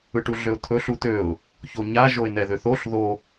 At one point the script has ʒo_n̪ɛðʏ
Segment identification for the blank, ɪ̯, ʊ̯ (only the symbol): ɪ̯